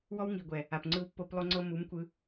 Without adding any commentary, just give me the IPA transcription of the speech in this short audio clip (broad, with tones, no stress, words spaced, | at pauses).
wɔ˦wŋi˨ɡʷɛ˨ | a˨p ŋ͡ǀɯ˧wpːo˧p lˠo˦ŋ͡ǀɤ˦ mu˨˦mkʷɯ˧